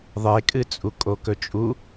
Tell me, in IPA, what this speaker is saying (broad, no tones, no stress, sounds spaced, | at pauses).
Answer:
ðˤ e kʼ ɨ t͡sʼ u kʼ o k ɵ t͡ʃʼ u